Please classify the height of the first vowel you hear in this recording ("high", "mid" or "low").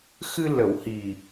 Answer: high